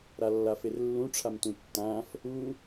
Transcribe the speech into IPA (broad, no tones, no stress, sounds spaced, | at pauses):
ɾ a lː a f e r lː ũ ʈ͡ʂʰ a m t ũ tː ã f | u